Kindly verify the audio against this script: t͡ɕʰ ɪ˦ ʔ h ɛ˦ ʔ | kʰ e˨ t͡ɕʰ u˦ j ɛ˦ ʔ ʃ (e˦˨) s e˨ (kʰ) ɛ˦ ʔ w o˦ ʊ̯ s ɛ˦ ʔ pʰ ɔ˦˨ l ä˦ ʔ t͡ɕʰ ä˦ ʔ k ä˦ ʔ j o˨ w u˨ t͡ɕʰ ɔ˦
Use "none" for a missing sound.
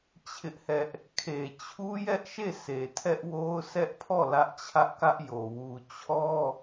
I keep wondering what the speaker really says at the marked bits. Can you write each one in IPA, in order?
e˦˨, tʰ

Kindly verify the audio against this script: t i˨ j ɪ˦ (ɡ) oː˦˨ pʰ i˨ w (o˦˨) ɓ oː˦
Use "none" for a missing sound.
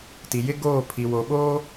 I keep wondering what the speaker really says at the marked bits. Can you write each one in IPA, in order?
ɡ, o˨

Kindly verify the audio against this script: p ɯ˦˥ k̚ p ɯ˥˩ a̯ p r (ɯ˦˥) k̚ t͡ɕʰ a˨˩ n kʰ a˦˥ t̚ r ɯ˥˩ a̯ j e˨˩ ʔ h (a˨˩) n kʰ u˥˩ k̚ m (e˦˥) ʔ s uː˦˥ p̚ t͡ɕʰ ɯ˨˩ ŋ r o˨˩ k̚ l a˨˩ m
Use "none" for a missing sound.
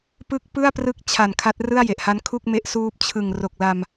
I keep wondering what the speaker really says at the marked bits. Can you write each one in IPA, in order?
ɯ˦˥, a˦˥, e˦˥

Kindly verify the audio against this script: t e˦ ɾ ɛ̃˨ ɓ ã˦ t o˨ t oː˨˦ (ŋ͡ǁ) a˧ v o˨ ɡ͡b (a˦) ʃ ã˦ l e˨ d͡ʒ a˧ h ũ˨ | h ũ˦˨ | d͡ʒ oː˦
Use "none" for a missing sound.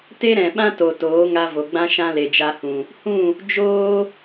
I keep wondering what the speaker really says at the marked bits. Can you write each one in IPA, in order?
ŋ, ã˦

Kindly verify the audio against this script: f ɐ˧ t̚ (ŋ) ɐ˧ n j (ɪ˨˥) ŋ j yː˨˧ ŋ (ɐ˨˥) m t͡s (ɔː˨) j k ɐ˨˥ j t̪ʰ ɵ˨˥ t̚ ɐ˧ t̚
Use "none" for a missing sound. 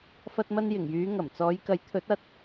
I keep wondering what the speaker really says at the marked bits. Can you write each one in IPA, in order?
m, ɪ˨˩, ɐ˨˩, ɔː˨˧

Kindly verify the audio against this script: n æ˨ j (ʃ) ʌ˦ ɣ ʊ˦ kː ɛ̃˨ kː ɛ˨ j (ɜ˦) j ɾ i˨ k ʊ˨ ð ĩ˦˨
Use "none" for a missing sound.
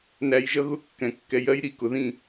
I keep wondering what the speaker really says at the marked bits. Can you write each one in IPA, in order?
ʒ, ɜ˦

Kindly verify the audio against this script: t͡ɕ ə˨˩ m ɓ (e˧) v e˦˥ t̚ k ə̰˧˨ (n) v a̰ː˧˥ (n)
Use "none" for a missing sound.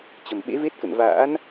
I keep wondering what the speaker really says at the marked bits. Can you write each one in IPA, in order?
ḛ˧˥, n, n

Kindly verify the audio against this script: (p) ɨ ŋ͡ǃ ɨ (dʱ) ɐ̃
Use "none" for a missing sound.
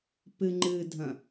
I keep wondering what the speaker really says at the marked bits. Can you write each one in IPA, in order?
p, dʱ

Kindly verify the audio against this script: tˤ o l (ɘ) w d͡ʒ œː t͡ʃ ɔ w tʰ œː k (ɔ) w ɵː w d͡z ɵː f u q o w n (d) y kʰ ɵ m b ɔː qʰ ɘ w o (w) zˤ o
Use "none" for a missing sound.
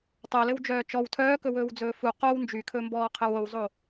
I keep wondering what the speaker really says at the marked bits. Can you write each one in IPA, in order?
ɘ, ɵ, d͡ʒ, w

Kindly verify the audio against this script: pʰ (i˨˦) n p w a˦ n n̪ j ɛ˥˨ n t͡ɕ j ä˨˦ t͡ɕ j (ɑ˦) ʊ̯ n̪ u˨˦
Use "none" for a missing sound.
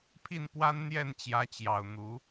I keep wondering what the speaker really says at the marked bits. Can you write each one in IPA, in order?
i˥˨, ɑ˨˩

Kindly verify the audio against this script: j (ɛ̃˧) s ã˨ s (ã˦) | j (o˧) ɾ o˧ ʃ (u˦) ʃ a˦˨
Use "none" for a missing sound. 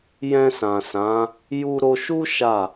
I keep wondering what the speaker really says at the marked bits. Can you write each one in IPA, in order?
ɛ̃˧, ã˨˦, u˧, u˦

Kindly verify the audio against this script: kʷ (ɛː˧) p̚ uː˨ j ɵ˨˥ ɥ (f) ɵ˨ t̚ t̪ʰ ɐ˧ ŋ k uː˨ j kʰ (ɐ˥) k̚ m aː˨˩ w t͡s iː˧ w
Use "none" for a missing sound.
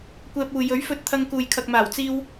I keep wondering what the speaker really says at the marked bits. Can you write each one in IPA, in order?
ɛː˧, f, ɐ˨

